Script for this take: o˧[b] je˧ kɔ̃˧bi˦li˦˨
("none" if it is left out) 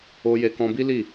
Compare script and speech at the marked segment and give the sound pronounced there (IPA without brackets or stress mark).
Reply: none